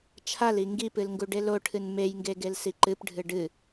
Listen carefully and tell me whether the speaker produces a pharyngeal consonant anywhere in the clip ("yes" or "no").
no